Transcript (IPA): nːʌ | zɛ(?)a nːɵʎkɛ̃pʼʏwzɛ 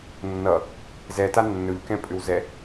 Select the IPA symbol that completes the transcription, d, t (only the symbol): t